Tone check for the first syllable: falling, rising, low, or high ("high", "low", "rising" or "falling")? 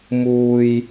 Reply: low